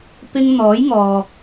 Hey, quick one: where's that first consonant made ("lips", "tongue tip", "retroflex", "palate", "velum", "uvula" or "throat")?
lips